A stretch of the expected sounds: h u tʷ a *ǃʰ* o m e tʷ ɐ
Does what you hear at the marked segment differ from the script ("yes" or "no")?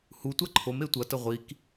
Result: no